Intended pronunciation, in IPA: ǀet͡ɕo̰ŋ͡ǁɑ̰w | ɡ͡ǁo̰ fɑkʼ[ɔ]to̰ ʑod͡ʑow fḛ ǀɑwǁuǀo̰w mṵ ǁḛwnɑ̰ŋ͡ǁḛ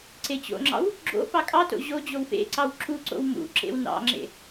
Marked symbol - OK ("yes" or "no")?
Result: no